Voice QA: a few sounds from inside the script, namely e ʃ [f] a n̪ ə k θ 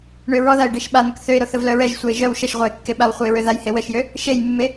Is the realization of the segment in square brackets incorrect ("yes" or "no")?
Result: yes